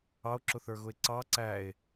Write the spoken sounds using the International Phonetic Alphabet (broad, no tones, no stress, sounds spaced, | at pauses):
ɑ o̯ ǁ ʊ θ ə˞ ɣ ʊ e̯ ǀ ɑ ǀ æ e̯